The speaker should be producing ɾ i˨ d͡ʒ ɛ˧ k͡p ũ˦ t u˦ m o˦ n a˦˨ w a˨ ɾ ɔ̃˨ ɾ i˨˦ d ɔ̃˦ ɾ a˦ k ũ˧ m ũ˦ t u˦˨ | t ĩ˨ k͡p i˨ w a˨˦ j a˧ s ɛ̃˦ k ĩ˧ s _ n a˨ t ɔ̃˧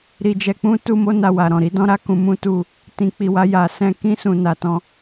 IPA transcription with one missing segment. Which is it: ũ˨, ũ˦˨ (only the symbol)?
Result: ũ˨